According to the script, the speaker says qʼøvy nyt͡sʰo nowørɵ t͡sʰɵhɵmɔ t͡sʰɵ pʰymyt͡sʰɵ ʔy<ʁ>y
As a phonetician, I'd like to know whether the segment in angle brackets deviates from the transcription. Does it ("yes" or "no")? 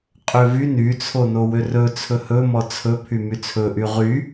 no